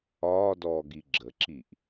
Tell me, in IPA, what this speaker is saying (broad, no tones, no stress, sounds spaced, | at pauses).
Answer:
ɒː d ɔː ɡ i ɡ͡ǁ ə ǁ i ʔ